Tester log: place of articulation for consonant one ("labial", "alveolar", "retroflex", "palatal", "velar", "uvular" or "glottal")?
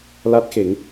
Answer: alveolar